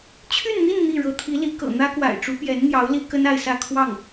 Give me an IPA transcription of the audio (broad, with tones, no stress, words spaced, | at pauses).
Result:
t͡ɕʰy˥˧nn̪i˥˧n n̪i˥˩ ɻɤ˧˥t̪ʰi˧˥li˧˥ kɤ̰˨˩n̪ä˥ kwa̰˨˩ɪ̯ʈ͡ʂu˧˥pjɛ˧˥nn̪jɑ˧˥ʊ̯ li˥ kə˥na˥˧ɪ̯sä˥˧ kʰwɑ˥˩ŋ